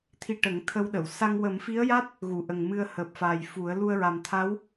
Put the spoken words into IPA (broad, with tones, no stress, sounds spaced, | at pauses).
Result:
t̪ʰ i˧ ʈ ə˨˩˦ ŋ t̪ʰ ə˧ w ɗ ə˨˩˨ w s a˧ ŋ w ə˨˩˦ m f i˧˥ ə̯ j a˦˥ t̚ | ɣ u˨˩˨ ʔ ə˨˩ ŋ m ɨ˧ ə̯ h əː˨˩ p̚ f aː˨˩ j f u˨˩˦ ə̯ l u˧ ə̯ ɹ a˨˩ m t̪ʰ a˧˥ w